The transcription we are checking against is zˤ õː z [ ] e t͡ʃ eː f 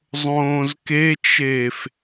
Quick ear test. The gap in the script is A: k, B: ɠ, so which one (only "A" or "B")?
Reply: A